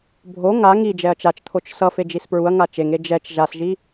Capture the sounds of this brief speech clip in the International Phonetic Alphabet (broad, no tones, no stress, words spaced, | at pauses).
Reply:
bʱo ŋa ŋi d͡ʒɛɐ̯t͡ʃat͡ʃt̪ʰot͡ʃ sʌfe d͡ʒispɹuɐ̯ŋa t͡ʃeŋe d͡ʒɛt͡ʃ ʒasʒi